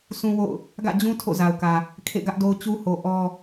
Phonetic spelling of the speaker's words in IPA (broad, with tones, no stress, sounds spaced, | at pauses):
sʰ ũ˦ w o̰˦˨ ʊ̯ | ɡ ä̰˦˨ d͡ʑ ũ˦ tʰ o̰˦˨ z a˨ ʊ̯ k ä˨ | kʰ ḛ˦˨ ɡ ä˦ ʔ d o˦ ʊ̯ t͡ɕ u˦ h o˨ ʔ ɔ˦